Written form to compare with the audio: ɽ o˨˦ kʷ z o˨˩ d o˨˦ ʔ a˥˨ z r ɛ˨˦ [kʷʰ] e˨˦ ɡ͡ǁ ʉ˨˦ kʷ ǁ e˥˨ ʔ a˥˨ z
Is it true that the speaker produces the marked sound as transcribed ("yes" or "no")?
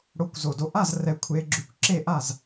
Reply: yes